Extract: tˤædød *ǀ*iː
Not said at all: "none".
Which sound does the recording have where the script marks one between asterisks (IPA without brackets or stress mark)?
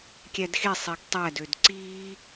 ǀ